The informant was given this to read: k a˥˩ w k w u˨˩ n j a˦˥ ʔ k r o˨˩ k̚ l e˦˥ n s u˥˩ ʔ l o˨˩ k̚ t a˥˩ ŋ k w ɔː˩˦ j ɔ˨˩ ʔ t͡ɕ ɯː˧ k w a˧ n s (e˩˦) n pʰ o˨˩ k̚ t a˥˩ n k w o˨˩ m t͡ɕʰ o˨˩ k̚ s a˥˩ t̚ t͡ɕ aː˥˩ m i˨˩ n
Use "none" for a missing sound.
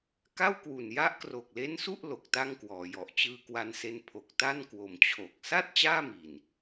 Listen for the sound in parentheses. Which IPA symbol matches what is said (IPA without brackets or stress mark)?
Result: e˧